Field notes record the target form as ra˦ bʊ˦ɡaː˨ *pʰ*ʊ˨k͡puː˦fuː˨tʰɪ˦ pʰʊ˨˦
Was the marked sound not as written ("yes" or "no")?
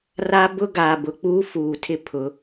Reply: yes